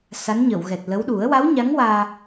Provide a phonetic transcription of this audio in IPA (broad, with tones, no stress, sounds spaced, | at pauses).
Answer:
s a˧˥ n ɲ ə˨˩˨ w ɣ ɛ˨˩ t̚ l ə˧˥ w ɗ u˨˩˦ ə̯ w a˧˥ w ɲ a˧˥ ŋ w aː˧